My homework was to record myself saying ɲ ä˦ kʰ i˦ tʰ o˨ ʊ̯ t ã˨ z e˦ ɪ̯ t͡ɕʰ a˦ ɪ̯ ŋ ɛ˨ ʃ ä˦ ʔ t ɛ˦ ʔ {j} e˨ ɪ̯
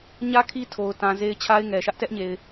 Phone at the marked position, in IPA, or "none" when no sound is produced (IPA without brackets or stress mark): ɲ